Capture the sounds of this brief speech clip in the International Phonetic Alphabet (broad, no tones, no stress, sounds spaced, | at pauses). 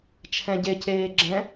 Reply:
t͡ʃʰ ɛ̃ ɟ e c eː ɡ͡ǁ ɛ̃